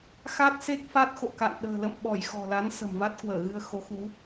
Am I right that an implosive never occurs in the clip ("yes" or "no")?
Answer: no